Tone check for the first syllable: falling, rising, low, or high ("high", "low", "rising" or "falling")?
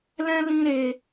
high